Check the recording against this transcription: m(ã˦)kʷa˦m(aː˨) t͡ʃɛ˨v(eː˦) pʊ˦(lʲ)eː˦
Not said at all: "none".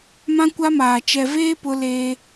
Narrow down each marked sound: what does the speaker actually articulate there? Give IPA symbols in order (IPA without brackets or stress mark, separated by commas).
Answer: ã˦, aː˨, eː˦, l